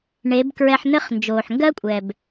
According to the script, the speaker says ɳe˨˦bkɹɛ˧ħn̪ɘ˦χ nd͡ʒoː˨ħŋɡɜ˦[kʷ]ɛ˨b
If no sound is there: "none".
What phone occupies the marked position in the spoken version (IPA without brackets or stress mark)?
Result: kʷʼ